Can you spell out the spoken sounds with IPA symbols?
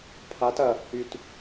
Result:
pʰat ɐ | yt

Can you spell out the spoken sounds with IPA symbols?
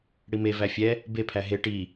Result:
ɽime væfʲɛ | bepʰæ ɦe ʈi

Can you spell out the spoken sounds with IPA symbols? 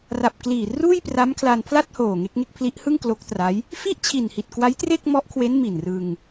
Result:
ra˨˩p̚kliː˨˩ ruː˥˩jpra˦˥mkʰla˧n pʰla˥˩t̚hoː˨˩ ŋe˦˥k̚ŋe˥˩k̚ pʰli˦˥ʔhɯ˥˩ŋ klo˦˥k̚tra˦˥j | fi˥˩ʔt͡ɕʰi˨˩nhi˨˩t̚ kwa˦˥jtre˥˩k̚ mɔ˦˥ʔkʰwe˦˥n mi˨˩nrɯ˧ŋ

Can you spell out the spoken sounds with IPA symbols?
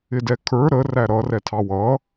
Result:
ɪdɛkʰə˞ ɾə ræɾʌ rɛtʰɑwʌ

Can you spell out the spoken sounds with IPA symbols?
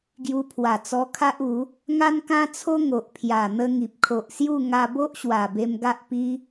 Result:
ɡju˧pʰwa˨˩t͡sɔ˧ kʰa˦ʔu˨˦ | ŋa˦nkã˦t͡sʰo˦ ŋo˨ʔpʰja˨˩ n̪ə˧ ŋi˨p̚kʰo˨ʔsju˥˧ ŋa˧bo˦ʔɕwa˨˩ be˧mɡa˦ʔ pi˦

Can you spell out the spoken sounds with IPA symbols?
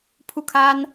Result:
pʰu˥˩kʰa˥n

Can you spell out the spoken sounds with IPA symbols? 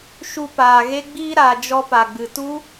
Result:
ʃu˧paː˨ɣe˦ɡ͡biː˦ ɾa˨ d͡ʒɔ˧pa˨ɡ͡bɨ˨tu˦

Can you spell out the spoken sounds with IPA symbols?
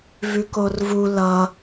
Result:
vʉkorvu lʌ

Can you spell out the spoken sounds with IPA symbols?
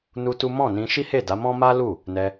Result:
nu˦tu˦ mɔ̃˦˨nĩ˧ ʃi˦he˦˨da˨˦mɔ̃˦ ma˦lu˦˨ | nɛ˧

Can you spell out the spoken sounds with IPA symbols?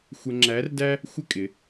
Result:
xʷə˧ŋ͡ǁæ˧˥rdæ˥ | xʷɪ˥kʼɪ˩˧

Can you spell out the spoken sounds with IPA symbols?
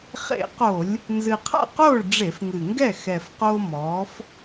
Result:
χḛ˧˩˧qo˧˩˧lʲ | nzɨ˨˩qʰa̰˥˩qoː˥˩ɭ ɖ͡ʐe˧˩˧fŋɨ˨˩ŋɡɛ˥˩ xɛ˨˩fqoː˧ mɔː˨˥f

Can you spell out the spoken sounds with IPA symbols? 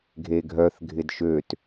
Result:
ɡʱeɡʱœθ ɡʱɪdʃøt

